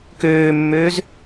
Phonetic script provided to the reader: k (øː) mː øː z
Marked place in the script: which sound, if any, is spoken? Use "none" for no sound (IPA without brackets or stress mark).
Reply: øː